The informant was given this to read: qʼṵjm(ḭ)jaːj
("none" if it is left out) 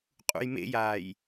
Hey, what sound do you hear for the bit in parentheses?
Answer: ḛ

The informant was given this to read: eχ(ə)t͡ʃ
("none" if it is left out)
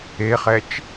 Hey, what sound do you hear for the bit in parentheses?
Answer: ɛ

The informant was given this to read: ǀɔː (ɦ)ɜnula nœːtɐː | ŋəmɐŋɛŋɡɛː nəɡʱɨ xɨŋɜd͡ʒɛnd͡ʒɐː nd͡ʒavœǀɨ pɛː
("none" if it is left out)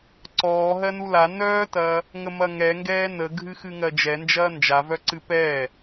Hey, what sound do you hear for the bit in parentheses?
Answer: ɦ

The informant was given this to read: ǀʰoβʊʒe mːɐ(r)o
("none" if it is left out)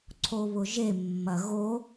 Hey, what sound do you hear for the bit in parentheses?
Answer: ɣ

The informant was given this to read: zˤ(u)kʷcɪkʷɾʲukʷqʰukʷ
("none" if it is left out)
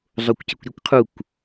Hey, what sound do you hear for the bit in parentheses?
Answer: o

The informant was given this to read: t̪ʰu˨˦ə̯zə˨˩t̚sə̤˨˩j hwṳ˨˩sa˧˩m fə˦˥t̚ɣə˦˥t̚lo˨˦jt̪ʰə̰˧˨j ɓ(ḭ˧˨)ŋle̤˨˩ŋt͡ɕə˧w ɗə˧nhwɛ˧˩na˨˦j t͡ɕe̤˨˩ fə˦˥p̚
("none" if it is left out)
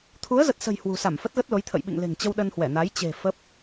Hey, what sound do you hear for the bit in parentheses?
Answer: ḭ˧˨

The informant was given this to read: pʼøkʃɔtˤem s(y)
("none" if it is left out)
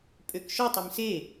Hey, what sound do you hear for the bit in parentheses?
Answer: e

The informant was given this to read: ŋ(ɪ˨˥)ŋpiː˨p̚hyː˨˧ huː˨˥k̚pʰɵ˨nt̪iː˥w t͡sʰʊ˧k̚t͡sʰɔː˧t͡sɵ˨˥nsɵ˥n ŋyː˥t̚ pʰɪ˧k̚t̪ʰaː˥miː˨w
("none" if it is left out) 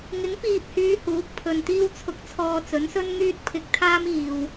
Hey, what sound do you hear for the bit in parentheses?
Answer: ɪ˨˥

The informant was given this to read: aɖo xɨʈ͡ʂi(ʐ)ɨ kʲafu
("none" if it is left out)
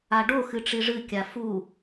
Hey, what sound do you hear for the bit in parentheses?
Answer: ʐ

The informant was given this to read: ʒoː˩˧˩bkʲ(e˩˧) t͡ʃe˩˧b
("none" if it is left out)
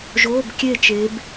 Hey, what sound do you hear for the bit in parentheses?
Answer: e˧˩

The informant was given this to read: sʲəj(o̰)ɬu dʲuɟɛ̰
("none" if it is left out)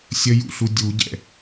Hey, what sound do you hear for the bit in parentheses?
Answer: ṵ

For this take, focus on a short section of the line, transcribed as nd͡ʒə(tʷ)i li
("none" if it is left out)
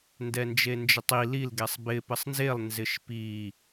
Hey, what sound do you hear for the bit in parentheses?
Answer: tˤ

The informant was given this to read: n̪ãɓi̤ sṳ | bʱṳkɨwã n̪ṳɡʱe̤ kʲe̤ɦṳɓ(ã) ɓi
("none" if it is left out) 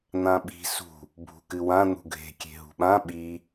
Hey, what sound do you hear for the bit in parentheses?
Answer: ã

